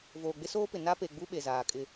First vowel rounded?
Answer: yes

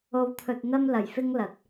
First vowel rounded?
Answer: yes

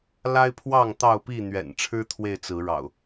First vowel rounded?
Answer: no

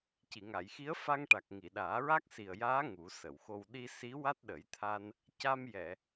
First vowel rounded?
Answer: no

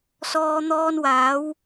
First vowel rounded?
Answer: yes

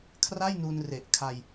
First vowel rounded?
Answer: no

